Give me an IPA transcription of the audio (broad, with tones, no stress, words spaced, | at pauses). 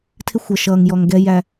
tʰɪ˦xʷʌ˨ʃʌː˨ŋjɔ˨ŋ ɡɛ˦jæ˦